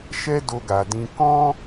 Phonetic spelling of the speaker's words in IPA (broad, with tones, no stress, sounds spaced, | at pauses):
ʃ ɛ˦ d o˧ ɡ a˨ d ĩ˧ k ɔ̃˦